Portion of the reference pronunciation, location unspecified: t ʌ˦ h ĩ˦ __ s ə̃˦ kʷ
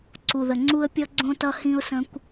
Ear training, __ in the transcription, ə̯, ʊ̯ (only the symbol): ʊ̯